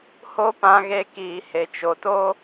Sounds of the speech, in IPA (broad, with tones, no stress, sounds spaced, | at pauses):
h o˦ p ã˧ ɣ e˧ k iː˨ h e˨ t͡ʃ o˨ t o˦